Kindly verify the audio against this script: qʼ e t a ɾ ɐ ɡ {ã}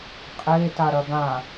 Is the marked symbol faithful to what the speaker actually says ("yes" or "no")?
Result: yes